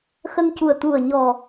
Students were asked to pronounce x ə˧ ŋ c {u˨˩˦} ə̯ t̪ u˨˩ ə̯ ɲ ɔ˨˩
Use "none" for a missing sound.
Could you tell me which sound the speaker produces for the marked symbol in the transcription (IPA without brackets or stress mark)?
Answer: u˨˩